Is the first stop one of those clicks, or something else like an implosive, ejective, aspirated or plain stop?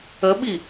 implosive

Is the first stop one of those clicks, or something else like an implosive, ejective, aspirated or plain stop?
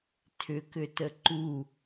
aspirated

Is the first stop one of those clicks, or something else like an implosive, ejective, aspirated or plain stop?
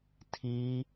aspirated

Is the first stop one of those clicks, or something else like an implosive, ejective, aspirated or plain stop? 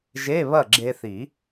click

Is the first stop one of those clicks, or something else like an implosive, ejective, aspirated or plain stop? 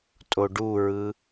ejective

